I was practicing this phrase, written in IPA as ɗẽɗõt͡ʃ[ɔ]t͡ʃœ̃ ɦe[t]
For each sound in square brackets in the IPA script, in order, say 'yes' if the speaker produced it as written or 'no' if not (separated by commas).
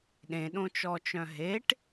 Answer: yes, no